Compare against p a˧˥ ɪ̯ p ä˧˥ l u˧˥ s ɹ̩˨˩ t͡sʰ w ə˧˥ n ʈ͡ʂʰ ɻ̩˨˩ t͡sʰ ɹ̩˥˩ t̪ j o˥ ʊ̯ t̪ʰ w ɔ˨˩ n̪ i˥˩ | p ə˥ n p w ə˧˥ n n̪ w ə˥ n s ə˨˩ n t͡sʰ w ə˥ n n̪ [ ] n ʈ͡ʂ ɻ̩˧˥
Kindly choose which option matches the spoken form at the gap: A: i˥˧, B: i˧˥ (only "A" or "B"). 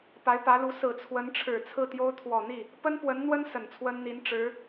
B